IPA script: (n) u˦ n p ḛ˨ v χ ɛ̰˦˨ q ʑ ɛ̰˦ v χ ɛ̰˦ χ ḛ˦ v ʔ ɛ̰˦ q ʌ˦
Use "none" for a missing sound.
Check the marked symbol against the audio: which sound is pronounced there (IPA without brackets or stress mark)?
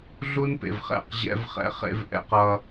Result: ɮ